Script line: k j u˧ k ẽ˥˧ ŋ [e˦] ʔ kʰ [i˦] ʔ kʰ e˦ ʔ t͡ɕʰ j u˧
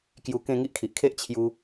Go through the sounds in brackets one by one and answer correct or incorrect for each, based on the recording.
incorrect: i˦, incorrect: i˨

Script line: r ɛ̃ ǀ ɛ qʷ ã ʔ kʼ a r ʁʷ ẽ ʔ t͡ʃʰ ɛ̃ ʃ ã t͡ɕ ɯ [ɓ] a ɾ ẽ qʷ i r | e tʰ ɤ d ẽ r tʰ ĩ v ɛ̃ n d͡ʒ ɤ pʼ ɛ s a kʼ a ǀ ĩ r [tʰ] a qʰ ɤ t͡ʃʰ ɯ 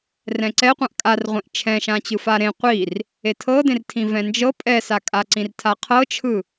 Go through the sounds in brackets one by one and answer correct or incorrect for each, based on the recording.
incorrect: f, correct

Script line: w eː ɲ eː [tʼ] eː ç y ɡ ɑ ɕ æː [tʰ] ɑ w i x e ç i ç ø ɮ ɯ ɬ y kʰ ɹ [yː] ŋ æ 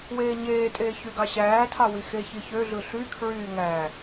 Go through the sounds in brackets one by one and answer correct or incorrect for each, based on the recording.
correct, correct, correct

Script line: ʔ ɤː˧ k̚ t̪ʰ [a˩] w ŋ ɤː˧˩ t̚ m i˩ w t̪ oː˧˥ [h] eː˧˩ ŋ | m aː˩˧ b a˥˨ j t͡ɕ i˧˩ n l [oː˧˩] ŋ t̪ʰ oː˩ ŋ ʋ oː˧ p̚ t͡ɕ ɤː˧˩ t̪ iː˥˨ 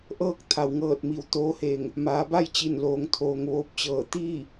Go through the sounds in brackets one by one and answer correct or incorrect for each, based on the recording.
correct, correct, incorrect: oː˩˧

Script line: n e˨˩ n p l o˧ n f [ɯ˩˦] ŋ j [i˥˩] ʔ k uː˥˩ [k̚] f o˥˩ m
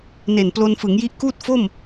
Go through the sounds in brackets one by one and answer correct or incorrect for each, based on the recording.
correct, incorrect: i˦˥, incorrect: t̚

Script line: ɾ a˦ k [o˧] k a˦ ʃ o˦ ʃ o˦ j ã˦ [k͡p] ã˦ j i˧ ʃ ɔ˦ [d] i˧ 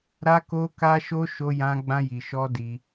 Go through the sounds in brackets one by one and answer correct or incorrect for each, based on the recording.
incorrect: o˦, incorrect: ɡ͡b, correct

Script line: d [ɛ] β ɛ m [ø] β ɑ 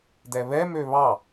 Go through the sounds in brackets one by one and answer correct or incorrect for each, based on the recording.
correct, correct

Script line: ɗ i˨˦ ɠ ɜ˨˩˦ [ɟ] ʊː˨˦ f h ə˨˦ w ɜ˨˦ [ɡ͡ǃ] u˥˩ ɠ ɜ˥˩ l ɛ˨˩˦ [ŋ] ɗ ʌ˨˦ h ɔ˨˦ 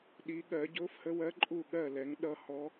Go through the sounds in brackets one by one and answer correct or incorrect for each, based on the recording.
correct, incorrect: ǃʼ, correct

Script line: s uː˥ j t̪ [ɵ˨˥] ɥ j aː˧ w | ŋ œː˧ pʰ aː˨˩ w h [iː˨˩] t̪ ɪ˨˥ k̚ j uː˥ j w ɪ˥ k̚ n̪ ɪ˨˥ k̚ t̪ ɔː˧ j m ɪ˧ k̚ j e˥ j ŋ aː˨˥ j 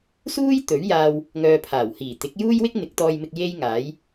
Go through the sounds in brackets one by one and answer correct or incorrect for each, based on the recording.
correct, correct

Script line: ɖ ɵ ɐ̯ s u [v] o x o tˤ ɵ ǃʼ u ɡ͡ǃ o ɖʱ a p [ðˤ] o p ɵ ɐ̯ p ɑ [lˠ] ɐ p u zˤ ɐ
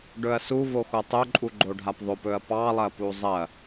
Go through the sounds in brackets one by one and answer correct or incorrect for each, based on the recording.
correct, correct, correct

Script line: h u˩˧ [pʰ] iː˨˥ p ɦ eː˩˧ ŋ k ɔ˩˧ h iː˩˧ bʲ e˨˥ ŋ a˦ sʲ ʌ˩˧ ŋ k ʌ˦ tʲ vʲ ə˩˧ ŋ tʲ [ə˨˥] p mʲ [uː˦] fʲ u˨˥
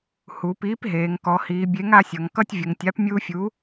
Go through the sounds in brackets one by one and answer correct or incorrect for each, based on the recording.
incorrect: p, incorrect: a˨˥, correct

